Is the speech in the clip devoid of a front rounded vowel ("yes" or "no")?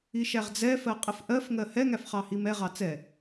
yes